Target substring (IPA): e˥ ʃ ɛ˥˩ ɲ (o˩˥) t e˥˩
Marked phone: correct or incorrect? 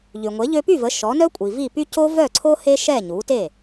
incorrect: u˩˥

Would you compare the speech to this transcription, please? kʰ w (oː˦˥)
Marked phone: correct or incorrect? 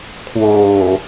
incorrect: oː˨˩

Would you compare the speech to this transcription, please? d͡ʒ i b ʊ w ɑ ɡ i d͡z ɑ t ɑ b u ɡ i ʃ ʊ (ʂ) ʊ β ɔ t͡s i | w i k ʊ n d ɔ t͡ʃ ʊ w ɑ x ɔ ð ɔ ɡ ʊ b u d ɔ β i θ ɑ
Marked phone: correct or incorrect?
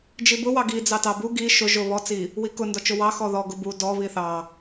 incorrect: ʒ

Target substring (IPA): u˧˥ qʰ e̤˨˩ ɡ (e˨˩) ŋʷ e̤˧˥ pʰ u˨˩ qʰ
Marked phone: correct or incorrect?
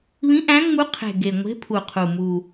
correct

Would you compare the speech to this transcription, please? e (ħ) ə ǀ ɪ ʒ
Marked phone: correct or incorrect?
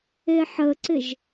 correct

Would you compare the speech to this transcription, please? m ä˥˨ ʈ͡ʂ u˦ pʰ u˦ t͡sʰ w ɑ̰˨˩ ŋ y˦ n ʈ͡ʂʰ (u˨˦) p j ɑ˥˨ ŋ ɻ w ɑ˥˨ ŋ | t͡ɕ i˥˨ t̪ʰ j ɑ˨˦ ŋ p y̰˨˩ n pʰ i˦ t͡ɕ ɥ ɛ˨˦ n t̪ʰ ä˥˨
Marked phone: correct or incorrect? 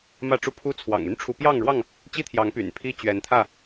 correct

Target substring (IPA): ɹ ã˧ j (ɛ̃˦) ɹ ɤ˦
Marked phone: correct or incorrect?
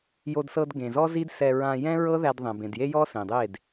correct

